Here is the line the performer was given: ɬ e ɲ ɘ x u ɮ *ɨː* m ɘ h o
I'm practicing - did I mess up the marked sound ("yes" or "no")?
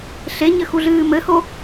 no